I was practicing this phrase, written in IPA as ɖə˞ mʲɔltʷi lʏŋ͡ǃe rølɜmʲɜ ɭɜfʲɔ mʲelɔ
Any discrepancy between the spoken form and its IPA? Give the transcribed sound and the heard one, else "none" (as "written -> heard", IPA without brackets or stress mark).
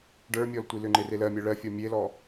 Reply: ø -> e